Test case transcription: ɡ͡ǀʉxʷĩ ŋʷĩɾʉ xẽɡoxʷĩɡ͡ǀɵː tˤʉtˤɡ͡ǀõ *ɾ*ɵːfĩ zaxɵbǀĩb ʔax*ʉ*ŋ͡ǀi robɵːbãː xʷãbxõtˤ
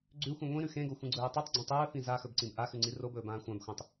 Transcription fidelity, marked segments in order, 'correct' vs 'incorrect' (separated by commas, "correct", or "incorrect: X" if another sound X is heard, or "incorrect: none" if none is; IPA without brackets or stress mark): incorrect: tˤ, correct